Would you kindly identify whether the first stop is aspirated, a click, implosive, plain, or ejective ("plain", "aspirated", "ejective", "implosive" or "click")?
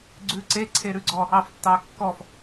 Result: click